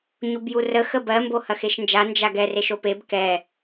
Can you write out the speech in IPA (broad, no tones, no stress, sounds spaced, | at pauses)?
ɲ u b j u r ə x ə b ɜ m b o h ɐ x e ʃ n d͡ʒ a n d͡ʒ a ɡ ɛ r e ʃ o p e b k ɛ